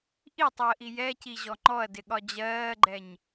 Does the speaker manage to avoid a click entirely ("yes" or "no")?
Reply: no